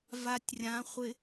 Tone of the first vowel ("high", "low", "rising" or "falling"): low